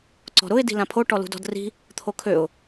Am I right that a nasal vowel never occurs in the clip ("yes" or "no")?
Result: no